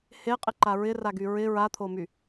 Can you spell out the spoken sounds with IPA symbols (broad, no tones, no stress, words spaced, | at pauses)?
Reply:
heqʼɪǃa ɹɪraɡy ɹɪ ɹat̪ʰomy